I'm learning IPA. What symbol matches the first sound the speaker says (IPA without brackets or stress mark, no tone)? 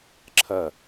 ǁʰ